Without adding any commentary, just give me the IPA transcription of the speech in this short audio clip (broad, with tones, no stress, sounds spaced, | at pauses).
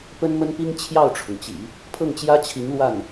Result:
p ə˥ n m ə˥ n p i˥ ŋ t͡ɕʰ j ɑ˥˩ ʊ̯ ʈ͡ʂʰ ʊ˩ ŋ t͡ɕ ḭ˨˩˦ | pʰ ɤ˥˩ ŋ t͡ɕ j ä˥ t͡ɕʰ i˧˥ ŋ l w a˥˩ n